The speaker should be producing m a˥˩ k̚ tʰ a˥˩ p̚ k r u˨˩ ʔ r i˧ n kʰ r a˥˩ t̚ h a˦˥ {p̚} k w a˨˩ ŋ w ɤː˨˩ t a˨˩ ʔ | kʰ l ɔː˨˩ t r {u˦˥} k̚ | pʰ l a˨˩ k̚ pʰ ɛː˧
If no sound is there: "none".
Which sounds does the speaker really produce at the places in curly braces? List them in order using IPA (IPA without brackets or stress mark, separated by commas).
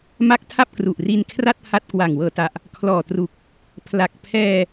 t̚, u˨˩